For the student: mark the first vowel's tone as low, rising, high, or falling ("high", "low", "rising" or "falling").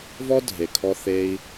high